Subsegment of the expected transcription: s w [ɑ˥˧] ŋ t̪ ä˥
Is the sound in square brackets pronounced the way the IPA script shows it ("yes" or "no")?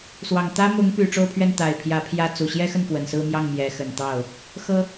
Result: no